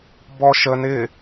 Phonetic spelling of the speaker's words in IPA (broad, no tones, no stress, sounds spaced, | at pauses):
b ɔ ʃ ə n ɪ